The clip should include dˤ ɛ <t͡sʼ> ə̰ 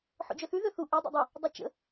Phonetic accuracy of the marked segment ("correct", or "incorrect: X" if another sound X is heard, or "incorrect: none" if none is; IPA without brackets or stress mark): incorrect: t͡ʃ